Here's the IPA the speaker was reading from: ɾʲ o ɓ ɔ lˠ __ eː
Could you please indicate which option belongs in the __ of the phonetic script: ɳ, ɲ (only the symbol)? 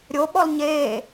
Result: ɲ